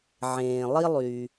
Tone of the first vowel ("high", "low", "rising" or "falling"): low